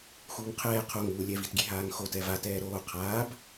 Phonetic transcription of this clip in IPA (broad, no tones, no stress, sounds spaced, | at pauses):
x uː ŋ qʰ ɛː qʰ o ŋ uː lʲ ɛ v i t ɡʲ e ɦ aː ŋ x o t ɛ v a t ɛː ɾ oː qʰ aː b